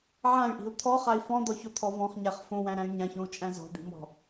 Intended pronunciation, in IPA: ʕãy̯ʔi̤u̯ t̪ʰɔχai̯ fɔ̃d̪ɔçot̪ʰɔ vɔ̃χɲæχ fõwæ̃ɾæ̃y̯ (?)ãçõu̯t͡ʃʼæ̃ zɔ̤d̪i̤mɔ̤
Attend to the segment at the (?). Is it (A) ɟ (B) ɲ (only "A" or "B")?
B